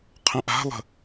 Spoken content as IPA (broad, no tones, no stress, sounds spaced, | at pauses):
qʰ ə̃ ʔ a̤ lˠ ə̤